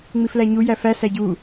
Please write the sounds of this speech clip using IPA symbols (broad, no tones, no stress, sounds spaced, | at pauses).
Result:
ŋ͡m i f l æ ɲ u j æ f æ s æ ɟ u